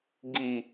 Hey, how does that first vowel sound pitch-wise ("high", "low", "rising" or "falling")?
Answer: low